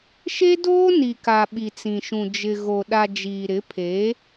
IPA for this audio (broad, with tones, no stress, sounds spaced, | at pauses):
ʃ e˦ d oː˦ n i˨ k a˨ ɓ i˨ t͡s ĩ˨ ʃ ũ˨ d͡ʒ ɪ˨ ɣ o˨ ɗ a˨ d͡ʒ iː˨ ɾ ɪ˨˦ pʰ eː˨˦